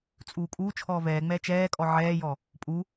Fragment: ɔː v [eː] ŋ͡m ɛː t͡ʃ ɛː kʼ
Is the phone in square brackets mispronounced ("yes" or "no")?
yes